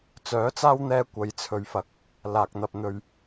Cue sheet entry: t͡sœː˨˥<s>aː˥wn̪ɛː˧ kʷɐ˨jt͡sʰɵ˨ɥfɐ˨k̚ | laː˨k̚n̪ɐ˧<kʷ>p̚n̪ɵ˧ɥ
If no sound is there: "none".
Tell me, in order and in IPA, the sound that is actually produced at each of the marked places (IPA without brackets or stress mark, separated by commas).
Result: t͡s, none